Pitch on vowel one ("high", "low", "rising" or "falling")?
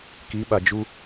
rising